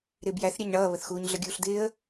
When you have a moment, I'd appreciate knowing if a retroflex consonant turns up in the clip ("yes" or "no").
yes